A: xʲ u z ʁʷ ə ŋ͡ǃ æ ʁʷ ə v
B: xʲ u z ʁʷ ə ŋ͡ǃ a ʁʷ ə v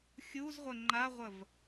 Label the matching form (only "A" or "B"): B